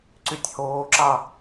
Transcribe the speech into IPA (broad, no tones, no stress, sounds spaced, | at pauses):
ǀ y tʲ h oː ǁ ɑ